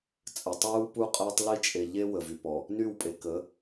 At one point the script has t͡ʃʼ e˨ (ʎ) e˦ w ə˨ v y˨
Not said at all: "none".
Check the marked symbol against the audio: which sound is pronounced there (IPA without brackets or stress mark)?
ʎ